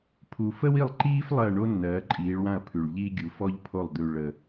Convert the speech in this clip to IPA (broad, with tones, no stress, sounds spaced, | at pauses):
pʰ u˨˩ f ə˥ w i˥˨ lˠ ǃ iː˥ f lˠ ɜ˥˨ ɳ o˥ nː ɜː˨˦ ǃʼ iː˨˦ ɭ w ã˥˨ ɐ̯ pʰ ʉ˨˩ ɭ ʎ iː˥ ɡʲ u˨˦ f ɔ˥ ʎ pʰ o˥˨ lˠ d̪ ʉ˨˩ ɭ ə˨˩